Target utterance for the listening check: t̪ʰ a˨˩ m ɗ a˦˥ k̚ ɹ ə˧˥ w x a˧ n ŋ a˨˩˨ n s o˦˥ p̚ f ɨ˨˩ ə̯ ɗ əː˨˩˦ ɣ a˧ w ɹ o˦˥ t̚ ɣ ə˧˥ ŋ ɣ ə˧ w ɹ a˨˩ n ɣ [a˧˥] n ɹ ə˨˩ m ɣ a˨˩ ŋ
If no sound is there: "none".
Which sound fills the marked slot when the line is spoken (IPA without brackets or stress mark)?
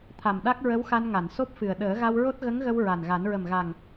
a˨˩˦